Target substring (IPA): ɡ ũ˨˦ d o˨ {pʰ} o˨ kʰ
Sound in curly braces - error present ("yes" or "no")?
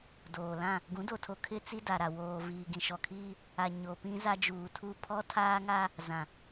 yes